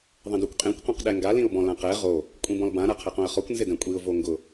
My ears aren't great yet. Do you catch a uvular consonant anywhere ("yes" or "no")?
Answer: yes